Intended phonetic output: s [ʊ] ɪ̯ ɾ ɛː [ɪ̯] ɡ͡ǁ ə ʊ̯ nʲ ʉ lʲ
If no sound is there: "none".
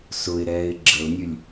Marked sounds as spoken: ʊ, ɪ̯

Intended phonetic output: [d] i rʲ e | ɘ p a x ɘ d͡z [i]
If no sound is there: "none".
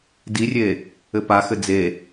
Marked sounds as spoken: d, e

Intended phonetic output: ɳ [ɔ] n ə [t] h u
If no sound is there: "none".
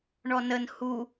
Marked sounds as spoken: ɔ, n

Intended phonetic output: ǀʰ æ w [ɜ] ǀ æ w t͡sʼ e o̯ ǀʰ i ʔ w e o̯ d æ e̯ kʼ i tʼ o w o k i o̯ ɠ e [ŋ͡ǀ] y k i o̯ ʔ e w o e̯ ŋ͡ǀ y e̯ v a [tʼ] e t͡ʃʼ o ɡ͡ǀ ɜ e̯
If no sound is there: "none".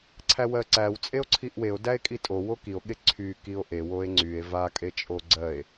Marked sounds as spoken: ɜ, ǀʰ, kʼ

